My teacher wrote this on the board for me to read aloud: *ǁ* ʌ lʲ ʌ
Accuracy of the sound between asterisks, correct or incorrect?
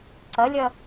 incorrect